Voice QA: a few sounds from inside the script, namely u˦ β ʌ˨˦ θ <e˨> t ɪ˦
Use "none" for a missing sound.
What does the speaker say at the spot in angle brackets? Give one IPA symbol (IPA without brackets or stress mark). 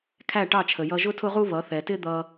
ɛ˨